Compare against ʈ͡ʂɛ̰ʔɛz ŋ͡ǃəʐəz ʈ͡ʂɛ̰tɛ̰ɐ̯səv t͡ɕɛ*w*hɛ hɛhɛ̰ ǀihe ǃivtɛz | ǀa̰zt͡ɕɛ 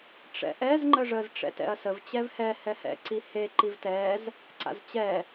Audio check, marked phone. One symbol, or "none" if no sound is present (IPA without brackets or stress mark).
v